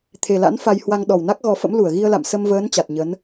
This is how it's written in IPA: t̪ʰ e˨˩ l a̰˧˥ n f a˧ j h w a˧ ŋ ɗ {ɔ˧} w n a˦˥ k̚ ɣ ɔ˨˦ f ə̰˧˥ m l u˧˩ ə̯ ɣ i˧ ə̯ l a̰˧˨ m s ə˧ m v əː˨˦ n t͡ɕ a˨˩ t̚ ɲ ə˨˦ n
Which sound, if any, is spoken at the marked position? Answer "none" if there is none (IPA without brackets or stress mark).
ɔ˨˩